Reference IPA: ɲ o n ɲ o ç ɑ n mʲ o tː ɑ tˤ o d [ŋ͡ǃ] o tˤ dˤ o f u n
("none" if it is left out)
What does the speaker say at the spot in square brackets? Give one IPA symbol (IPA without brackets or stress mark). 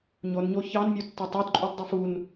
ǃʼ